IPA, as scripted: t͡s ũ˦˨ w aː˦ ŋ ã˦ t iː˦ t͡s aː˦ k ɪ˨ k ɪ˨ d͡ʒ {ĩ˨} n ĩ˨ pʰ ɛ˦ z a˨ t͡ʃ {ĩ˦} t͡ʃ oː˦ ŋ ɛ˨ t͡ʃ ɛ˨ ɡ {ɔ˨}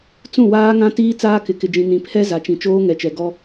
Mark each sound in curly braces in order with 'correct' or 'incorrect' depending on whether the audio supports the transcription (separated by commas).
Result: correct, incorrect, incorrect